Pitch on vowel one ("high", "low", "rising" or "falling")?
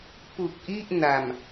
low